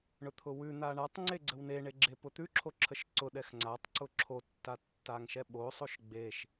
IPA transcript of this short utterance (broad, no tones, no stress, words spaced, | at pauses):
ɳʊt̪ʰʊwʉn̪a ɳatˤŋ͡ǀe ɡ͡ǀəwneɳe ɡ͡ǁepʊt̪ʉǁʰo ǁʰəʃǀʊɗɛx ŋ͡ǀatˤ ǀʊǁʰotːa tːaŋʃɛɓosˤoʃ ɡ͡beʃ